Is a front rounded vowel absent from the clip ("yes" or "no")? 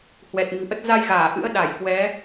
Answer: yes